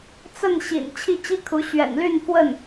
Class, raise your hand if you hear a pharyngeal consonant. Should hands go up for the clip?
no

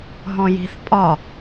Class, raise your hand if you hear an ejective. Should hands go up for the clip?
yes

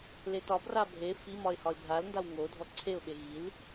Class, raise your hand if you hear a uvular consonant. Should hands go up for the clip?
no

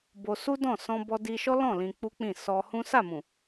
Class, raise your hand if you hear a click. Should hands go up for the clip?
no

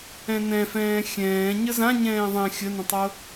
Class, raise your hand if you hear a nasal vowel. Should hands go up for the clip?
yes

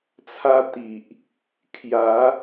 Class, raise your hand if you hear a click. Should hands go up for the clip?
no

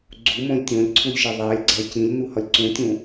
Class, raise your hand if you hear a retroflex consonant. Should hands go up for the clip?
no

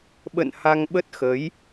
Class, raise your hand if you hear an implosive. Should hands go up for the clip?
yes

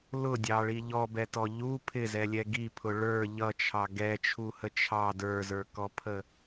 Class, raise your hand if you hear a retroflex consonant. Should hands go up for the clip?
yes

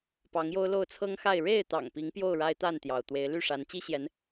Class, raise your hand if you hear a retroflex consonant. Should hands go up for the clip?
yes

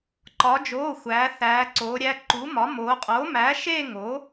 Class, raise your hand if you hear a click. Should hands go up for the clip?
yes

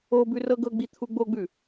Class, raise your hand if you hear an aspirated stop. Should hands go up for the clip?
yes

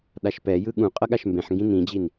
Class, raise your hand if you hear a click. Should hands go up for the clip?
no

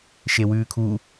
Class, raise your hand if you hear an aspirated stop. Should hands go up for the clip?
yes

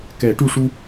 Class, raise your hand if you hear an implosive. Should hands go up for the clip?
no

